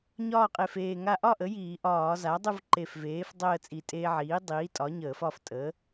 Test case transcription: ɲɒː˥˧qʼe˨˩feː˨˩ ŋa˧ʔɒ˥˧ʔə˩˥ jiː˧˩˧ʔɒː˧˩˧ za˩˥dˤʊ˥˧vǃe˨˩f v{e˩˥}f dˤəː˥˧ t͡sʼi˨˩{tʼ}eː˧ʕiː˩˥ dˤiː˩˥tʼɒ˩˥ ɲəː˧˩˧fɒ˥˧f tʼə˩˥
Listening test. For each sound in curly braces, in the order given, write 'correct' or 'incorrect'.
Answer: incorrect: eː˩˥, correct

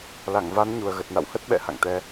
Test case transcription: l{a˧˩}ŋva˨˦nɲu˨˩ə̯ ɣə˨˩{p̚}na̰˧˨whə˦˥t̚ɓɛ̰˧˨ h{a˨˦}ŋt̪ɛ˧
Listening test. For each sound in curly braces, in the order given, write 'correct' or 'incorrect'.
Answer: correct, incorrect: t̚, incorrect: a̰˧˨

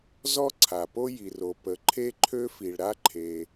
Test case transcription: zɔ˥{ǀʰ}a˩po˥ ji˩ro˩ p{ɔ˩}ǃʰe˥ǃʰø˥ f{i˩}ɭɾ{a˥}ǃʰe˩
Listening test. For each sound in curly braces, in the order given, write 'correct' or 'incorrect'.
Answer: correct, incorrect: ə˩, correct, correct

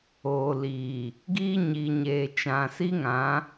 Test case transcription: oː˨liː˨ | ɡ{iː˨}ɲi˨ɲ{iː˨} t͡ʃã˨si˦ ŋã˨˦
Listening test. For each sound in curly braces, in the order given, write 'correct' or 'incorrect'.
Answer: incorrect: iː˦, incorrect: eː˨

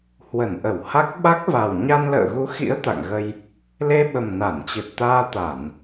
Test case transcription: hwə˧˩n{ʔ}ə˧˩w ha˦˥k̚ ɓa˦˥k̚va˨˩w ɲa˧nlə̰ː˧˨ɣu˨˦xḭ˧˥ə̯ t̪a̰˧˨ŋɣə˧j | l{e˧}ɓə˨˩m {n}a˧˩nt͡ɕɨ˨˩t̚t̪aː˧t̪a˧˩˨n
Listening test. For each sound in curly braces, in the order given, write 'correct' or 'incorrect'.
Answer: correct, correct, correct

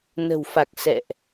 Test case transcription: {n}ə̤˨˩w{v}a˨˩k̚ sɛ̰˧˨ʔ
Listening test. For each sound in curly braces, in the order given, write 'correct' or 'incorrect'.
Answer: correct, incorrect: f

